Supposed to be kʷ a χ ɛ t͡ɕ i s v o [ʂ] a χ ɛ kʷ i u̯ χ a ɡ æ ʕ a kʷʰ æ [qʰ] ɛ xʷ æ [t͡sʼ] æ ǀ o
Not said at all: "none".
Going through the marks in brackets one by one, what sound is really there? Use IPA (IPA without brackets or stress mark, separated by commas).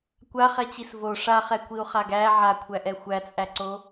ʂ, ʔ, t͡sʼ